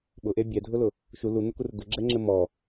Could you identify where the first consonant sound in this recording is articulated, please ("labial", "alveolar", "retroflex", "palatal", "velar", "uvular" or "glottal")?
labial